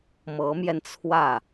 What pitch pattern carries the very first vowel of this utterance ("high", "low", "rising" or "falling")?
rising